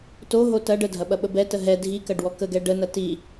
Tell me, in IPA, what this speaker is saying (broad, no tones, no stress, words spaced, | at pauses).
toɦo tɐɖ ədʱɐɓɐɓə bɛtə ɦɛ dʱikɐɖwɔ kəɡɛ ɖənɐ ti